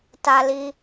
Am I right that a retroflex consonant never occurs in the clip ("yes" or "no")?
yes